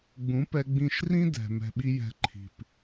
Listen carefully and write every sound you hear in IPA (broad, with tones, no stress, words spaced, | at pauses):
ɡ͡bũ˨˦pɛ˧ ɡ͡bĩ˦˨ʃ rĩ˦dɛ̤˨ mɛ̤˨ɓi˧ jɛ̤˧ǃʰi̤˨p